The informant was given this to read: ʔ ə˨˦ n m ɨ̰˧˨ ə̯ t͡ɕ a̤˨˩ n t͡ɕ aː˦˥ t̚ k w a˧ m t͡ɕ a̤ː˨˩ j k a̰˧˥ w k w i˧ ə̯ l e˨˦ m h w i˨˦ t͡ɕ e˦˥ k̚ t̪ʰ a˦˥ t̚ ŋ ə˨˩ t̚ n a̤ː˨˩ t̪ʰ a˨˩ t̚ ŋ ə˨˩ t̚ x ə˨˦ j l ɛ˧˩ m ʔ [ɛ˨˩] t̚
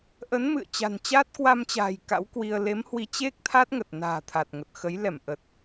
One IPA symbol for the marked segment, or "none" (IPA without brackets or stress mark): ə˨˩